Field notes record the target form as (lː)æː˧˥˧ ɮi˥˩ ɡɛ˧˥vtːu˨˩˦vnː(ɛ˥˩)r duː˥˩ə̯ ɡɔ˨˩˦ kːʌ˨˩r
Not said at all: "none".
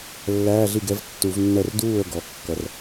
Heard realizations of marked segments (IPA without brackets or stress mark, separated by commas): lː, ɛ˥˩